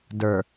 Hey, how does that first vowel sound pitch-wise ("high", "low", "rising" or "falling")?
low